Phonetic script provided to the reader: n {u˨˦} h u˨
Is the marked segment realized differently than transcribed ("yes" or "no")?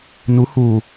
no